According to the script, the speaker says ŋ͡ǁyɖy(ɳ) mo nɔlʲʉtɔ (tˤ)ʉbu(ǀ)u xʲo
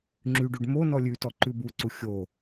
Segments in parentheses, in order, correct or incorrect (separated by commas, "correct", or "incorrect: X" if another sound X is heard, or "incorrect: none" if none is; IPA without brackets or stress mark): incorrect: ɖ, incorrect: ǃ, correct